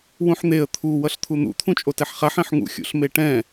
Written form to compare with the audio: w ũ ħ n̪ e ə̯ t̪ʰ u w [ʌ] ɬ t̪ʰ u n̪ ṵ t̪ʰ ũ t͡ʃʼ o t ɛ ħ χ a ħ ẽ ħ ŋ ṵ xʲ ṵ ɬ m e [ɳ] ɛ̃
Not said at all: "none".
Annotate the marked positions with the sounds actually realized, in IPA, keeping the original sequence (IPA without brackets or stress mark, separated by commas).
ʌ, ʈ